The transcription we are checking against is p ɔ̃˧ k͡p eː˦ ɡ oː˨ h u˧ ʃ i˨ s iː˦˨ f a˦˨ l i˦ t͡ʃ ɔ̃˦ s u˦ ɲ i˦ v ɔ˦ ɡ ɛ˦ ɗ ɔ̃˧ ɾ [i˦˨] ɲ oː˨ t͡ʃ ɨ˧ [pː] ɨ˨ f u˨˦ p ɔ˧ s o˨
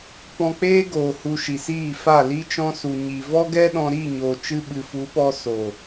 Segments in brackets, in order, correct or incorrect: correct, incorrect

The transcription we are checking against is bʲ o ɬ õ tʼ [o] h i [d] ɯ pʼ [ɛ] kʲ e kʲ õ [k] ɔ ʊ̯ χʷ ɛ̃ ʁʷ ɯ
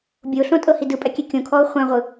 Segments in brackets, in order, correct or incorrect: incorrect, correct, correct, incorrect

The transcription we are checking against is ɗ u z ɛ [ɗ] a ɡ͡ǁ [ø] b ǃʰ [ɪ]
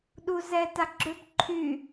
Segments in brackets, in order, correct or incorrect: incorrect, correct, incorrect

